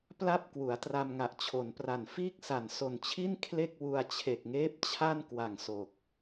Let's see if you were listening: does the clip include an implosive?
no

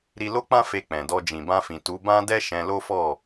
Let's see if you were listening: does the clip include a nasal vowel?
yes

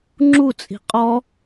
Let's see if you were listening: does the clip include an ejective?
yes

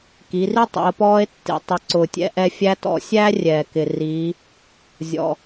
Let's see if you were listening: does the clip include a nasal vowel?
no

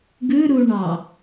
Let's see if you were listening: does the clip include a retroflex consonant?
yes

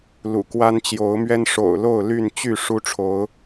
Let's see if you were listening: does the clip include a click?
no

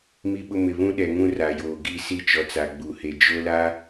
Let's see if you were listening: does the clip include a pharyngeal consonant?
no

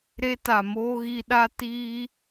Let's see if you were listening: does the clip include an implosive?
yes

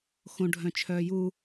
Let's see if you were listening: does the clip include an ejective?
no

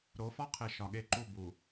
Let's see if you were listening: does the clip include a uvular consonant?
yes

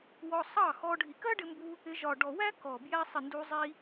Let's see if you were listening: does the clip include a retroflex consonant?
yes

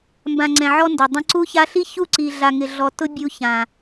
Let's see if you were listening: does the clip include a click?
yes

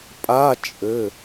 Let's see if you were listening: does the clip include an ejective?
yes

